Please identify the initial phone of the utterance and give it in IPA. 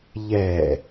ʎ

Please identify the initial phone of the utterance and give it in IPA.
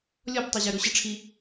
lʲ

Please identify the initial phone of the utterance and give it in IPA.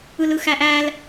ɯ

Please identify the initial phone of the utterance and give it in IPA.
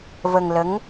v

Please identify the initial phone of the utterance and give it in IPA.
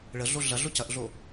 ɭ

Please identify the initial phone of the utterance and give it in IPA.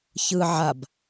ç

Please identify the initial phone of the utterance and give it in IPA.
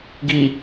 ɡ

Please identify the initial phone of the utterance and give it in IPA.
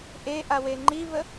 ʔ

